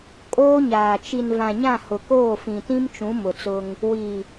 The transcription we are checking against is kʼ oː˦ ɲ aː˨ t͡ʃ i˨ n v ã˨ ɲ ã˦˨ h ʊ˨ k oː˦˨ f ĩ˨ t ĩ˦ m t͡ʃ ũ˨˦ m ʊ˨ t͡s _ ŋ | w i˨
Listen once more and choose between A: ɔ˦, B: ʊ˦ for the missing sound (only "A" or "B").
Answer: B